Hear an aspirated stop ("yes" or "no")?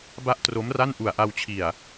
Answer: yes